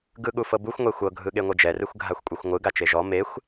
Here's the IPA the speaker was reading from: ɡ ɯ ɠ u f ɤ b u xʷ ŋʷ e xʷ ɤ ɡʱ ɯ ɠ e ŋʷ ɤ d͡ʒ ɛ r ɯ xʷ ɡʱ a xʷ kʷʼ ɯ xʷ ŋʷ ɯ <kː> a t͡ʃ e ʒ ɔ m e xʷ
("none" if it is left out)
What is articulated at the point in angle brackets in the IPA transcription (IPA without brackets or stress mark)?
ɡ